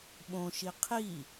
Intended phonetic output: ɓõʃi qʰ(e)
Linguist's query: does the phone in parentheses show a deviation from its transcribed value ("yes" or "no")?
yes